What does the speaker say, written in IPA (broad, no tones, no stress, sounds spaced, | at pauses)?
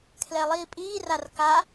kʰ l ɛ lˠ iː pʼ iː r a r k a